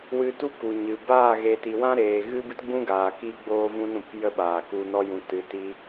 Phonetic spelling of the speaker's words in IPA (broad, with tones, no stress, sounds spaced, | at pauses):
w ɨ˧ t u˦ k u˨ ɲ ɨ˨ b aː˦˨ ɣ e˨ t i˨ w ã˦ ɾ eː˨ ɣ ɨ˦ b ɨ˦ t ɡ͡b ũ˦ ɡ aː˨ k i˧ ɡ͡b oː˧ v ũ˧ n ɾ ũ˨ p j ə˦ ɓ aː˨ k u˧ n ɔ˦ j ũ˧ t ɨ˧ t i˦